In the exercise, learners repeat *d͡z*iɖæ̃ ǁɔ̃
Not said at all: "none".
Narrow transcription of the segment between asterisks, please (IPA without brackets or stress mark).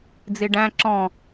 d͡z